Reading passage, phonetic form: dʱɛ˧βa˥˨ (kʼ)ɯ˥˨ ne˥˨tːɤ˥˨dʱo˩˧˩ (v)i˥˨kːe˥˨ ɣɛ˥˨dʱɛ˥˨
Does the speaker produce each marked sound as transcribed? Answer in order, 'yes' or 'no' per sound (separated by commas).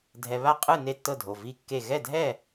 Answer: no, yes